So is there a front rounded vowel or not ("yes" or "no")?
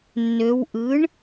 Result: yes